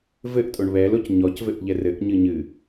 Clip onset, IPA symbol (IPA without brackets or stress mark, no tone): v